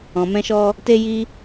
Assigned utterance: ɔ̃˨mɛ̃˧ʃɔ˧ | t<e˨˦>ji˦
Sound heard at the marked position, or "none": e˦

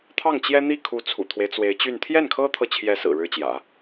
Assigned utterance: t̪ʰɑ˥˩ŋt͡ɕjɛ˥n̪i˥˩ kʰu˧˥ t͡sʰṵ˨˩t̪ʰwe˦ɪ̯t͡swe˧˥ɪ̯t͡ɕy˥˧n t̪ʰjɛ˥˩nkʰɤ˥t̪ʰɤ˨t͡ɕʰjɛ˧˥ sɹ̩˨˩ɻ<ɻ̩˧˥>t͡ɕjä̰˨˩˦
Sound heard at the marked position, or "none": ɻ̩˥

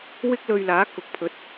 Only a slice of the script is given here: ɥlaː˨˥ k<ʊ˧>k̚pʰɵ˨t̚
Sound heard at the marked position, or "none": ʊ˨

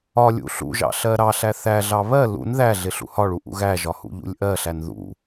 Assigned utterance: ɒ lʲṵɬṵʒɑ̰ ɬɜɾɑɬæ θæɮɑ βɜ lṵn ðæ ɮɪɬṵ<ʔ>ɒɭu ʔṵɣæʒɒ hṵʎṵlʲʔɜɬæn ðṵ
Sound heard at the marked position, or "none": h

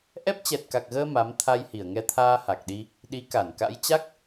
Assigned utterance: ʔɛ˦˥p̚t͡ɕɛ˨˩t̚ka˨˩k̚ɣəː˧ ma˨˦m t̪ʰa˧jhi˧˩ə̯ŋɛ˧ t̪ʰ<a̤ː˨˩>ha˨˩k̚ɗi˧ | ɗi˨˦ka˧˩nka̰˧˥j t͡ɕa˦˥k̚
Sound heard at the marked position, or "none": aː˧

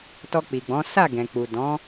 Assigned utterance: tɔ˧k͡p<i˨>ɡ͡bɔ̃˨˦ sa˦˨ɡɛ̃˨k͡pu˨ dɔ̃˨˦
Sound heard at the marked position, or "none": i˨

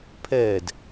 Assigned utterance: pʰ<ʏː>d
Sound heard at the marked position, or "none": ɛː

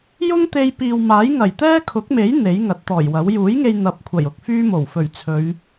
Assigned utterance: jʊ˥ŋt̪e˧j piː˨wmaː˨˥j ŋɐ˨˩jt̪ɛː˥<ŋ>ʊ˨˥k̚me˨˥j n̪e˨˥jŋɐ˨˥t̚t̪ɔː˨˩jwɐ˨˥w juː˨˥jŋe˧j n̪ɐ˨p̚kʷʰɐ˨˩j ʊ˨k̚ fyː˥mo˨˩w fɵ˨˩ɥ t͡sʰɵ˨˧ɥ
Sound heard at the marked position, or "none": kʰ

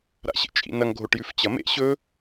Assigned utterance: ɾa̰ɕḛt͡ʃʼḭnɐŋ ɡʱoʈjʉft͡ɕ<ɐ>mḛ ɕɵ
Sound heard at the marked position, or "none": ɐ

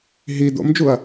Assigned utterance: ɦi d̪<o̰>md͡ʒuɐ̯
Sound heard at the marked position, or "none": o̰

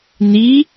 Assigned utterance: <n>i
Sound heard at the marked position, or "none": n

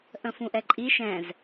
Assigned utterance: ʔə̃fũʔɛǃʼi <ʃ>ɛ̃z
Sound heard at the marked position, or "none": ʃ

